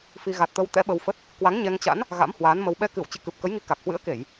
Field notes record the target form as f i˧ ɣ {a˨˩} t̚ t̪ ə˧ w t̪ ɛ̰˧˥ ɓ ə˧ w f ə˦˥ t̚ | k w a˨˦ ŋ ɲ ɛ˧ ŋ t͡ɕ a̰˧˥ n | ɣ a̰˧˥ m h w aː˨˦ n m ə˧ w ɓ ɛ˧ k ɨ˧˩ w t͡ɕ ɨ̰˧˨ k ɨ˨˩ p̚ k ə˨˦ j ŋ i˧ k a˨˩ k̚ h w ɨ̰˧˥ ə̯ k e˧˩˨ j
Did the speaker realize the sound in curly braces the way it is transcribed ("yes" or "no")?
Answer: yes